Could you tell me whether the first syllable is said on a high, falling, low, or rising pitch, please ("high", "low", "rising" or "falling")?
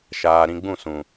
low